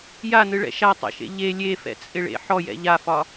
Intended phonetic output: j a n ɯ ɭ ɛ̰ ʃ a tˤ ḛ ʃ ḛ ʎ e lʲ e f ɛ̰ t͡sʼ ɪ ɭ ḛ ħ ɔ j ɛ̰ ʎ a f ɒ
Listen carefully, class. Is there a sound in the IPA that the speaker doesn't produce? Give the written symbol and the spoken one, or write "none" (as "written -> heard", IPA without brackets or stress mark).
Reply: none